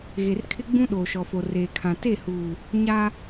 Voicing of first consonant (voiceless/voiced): voiced